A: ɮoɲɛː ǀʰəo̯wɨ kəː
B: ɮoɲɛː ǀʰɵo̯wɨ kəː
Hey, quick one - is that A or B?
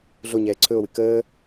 B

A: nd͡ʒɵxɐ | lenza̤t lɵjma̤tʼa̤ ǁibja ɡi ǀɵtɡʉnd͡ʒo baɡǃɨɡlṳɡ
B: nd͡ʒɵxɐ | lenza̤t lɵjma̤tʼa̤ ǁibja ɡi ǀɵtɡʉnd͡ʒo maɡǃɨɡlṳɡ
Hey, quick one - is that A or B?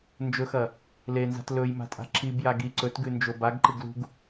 A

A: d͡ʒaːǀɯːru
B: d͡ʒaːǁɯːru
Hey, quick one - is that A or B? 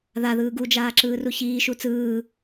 B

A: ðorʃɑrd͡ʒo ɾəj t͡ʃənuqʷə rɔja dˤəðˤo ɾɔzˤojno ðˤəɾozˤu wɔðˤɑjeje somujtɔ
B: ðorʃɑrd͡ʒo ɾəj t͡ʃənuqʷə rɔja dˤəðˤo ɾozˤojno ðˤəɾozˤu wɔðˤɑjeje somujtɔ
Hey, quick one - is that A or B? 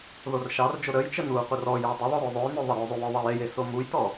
B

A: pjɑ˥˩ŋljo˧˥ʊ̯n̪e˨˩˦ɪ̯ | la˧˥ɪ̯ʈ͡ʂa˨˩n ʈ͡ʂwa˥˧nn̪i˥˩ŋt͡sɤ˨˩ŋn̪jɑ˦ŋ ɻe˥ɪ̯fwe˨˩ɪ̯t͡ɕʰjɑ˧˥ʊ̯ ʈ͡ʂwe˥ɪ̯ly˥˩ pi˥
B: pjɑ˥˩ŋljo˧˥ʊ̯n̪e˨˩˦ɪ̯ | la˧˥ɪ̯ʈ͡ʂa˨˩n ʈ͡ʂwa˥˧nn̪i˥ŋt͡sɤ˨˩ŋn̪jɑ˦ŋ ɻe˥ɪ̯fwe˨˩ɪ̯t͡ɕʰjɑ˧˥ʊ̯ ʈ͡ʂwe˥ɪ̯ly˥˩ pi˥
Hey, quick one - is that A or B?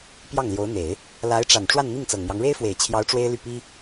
A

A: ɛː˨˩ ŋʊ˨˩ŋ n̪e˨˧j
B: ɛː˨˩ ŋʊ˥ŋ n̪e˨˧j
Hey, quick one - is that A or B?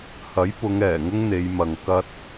B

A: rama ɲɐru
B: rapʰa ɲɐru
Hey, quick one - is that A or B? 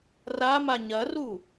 A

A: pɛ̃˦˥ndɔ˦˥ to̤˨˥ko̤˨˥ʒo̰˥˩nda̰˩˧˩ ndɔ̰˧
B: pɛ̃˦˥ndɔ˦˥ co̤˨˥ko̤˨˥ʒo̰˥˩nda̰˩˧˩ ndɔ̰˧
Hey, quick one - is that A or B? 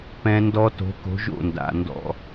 A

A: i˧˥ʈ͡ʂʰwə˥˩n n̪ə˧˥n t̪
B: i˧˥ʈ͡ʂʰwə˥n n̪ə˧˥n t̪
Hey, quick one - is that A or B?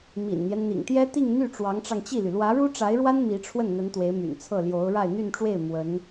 A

